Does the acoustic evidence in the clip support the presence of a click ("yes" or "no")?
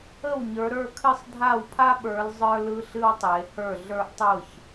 no